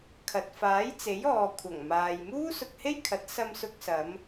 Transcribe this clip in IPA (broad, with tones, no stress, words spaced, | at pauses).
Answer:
kʰɐ˨t̚ faː˨˥jt͡se˨˥jɔː˨ kʷʰɐ˨˩ŋmaː˨j muː˥sʊ˧k̚he˥jkʰɐ˨˥t̚ sɐ˧msʊ˧k̚sɐ˨˧m